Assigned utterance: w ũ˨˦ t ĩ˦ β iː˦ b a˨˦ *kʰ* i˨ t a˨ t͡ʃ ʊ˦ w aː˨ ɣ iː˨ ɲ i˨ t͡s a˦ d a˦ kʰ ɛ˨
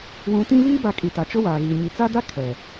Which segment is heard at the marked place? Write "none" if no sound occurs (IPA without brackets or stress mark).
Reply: kʼ